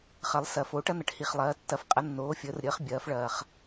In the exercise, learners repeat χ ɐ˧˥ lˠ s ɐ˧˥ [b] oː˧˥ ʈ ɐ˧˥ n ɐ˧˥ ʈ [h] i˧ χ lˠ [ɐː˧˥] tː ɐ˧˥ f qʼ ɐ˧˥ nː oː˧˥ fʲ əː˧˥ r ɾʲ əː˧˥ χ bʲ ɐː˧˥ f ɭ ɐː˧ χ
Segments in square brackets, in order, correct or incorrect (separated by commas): incorrect, correct, correct